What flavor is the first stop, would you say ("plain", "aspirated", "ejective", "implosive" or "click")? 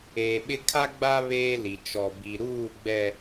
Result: implosive